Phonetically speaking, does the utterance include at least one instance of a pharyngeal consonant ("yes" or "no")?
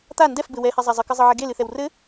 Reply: yes